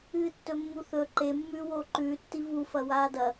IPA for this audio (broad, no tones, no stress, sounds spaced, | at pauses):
ɨː tː ɵ mː u θ ɵ ǃ e mː ʉː w oː ǃ ʉː tː i v u f ɐ w aː d ɐ